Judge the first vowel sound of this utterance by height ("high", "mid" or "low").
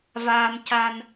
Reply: low